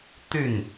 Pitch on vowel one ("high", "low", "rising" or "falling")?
falling